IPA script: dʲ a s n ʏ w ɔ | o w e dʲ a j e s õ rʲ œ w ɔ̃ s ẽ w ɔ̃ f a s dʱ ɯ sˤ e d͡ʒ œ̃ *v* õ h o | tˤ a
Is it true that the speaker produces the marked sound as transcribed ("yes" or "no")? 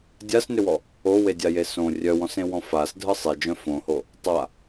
no